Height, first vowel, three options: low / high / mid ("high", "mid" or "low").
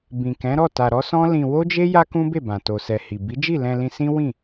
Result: high